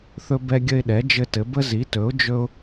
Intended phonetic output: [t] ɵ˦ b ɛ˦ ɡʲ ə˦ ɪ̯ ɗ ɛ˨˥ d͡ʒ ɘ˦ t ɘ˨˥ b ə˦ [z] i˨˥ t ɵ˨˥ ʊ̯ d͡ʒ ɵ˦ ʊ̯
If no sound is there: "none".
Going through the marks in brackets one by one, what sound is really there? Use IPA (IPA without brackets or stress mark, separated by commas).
θ, z